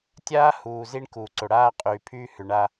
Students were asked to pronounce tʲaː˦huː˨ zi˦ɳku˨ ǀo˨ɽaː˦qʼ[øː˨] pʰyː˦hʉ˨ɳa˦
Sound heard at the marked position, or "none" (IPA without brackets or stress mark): yː˨